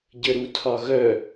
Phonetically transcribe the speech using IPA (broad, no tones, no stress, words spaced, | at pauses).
ɟəɾutʰɒɣœ